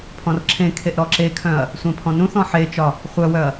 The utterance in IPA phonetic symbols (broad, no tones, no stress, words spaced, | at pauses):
pʰɔ̃rǁʰẽkʰeʔ ɾɔǁekʰœ̃ɐ̯ | sʷẽpʰɔ̃nũθɔ̃ ħet͡ʃɒ | χʷœwœɐ̯